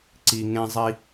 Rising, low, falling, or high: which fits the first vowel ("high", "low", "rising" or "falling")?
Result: low